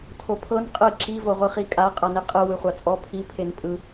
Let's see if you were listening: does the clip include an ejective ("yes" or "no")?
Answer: yes